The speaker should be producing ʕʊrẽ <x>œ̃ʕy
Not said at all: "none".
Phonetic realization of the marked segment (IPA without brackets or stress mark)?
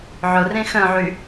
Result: x